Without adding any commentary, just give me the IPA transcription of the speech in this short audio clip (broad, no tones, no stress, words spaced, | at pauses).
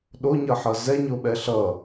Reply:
ɗoɲʌħʌ zɛɲoɓɛ ɬʌ